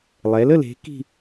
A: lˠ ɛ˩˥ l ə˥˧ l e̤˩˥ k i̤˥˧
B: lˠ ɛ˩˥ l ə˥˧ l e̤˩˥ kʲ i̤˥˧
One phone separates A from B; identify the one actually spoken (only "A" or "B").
A